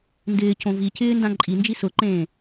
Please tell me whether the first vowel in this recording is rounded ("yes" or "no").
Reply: no